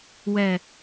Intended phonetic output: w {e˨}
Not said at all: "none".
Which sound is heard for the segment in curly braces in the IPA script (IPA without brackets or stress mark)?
ɛ˨